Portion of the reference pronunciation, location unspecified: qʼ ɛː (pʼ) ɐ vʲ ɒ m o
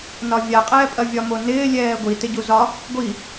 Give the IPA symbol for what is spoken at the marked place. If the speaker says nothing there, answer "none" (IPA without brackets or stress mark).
pʼ